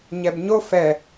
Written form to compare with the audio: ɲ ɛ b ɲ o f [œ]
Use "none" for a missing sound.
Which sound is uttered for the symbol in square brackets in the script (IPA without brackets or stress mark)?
ɛ